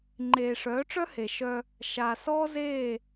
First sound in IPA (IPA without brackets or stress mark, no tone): ŋ͡ǃ